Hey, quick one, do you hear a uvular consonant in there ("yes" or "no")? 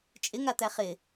yes